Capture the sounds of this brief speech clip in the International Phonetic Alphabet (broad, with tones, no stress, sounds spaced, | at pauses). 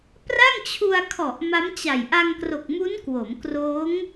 p r a˥˩ ŋ t͡ɕʰ u˧ a̯ kʰ ɔ˨˩ ʔ m a˦˥ m t͡ɕ a˨˩ j ʔ a˧ ŋ k r o˨˩ k̚ m u˦˥ n k w o˩˦ m k r oː˦˥ ŋ